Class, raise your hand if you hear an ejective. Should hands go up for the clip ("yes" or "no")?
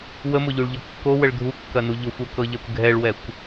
no